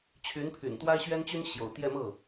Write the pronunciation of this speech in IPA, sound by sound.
t͡ɕʰ y˧˥ n pʰ y̰˨˩ n t̪ w a˥ ɪ̯ ɕ ɥ ɛ˥ n t͡ɕ y˥ n ɕ j o̰˨˩ ʊ̯ t̪ j ɛ˥˧ m ɤ˥˩

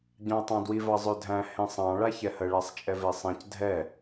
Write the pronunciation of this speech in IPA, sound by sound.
ɟ ɑ̃ ɐ̯ tˤ ɑ̃ d w i v ɑ zˤ ø dʱ æ̃ h ẽ sˤ ɑ̃ ɭ a ç ɛ h ə ɭ æ sˤ t͡ʃʼ ɛ v e sˤ ɛ̃ c dʱ ɛ

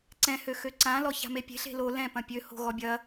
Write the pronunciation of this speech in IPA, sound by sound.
ǀ ɛ̃ h ø x ø ǀ ã l ɔ ç a̤ m e pʲ e̤ ɬ e̤ l o l ɛ̃ p ɐ̃ pʲ ø h o̤ ɣ ɔ bʲ ɐ

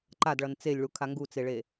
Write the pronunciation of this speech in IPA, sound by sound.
ǃ a d ɭ ʌ n t͡s e lʲ ɭ u kʰ a ŋ ɡ u t͡s e ɭ e

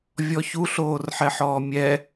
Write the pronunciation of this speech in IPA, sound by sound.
vʲ ɔ ç u ɬ oː r ħ ɛ ħ ɔː mʲ ɛ

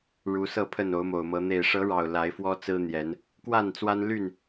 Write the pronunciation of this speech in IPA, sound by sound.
ɻ u˨˦ s ɤ˥˨ pʰ ə˥˨ n o˨˦ ʊ̯ m o˨˩ ʊ̯ m ɤ˨˦ n̪ e˨˩ ɪ̯ ʂ ɤ˨˦ ɻ ɑ˨˩ ʊ̯ l a˨˦ ɪ̯ f w ɔ˦ t͡s ɹ̩˦ n̪ j ɛ˨˦ n | k w a˥˨ n t͡s w a˦ n l y˥˨ n

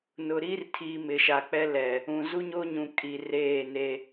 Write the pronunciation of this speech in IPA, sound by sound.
n ʊ˨ ɾ iː˦ r tʰ iː˨ m ɪ˨ ʃ a˨ k͡p ɛ˦ l ɛ˨ | ũ˨ z u˦ ɲ o˦ ɲ ũ˨ kʼ i˨ r eː˦˨ n e˦

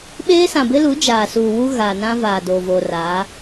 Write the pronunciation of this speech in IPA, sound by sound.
ɓ eː˦ s ã˨ b ɪ˦ l u˨˦ d͡ʒ aː˨ s uː˨ w u˦ ɣ a˨ n ã˦ v aː˨ d o˨ v o˨ r a˨˦

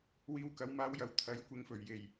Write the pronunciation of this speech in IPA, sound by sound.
w iː˨ w k ɐ˨˧ w m aː˧ w j ɐ˨ w t̪ʰ ɐ˨˥ j kʷ ɪ˨˥ ŋ f ɵ˨˩ ɥ j e˨˩ j

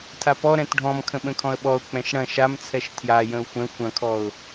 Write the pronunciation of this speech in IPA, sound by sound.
tʰ a p ɔ ɾ ɛ̃ t ɖʱ ɔ̃ m kʰ ə̃ ɓ ə̃ kʰ ɔ̃ ə̯ ɓ ɔ ʊ̯ k͡p ɛ̃ ʃ ɽ ɐ̃ ʃ a m t͡sʰ ɛ ʃ tʰ j a j ə̃ ʊ̯ xʷ ɛ̃ xʷ ɐ̃ kʰ ɔ ʊ̯

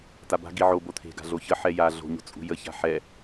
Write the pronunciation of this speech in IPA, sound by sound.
t a b a̤ ɡ i ʕ o b o t̪ʰ e̤ ɡ a̤ ɮ o ç ə ħ ɛ j a ɮ o̤ ɲ o̤ t͡sʼ ṳ j ə ç a̤ ħ ɛ

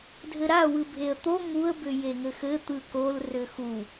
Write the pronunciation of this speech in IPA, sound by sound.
dʱ ɘ ɾ a w ɯ bʱ e ə̯ t̪ o ŋ u ə̯ b ʏ j e ŋ ɘ x ɘ t̪ ɯ k o l r ʏ x u

